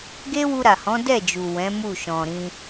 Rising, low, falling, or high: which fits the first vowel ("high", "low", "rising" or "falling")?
high